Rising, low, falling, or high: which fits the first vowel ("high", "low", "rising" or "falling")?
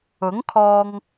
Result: rising